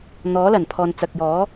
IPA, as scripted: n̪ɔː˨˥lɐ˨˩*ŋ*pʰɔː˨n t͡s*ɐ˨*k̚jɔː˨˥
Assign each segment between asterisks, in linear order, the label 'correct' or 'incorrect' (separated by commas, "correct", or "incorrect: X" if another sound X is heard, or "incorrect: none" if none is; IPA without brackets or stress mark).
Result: incorrect: n, correct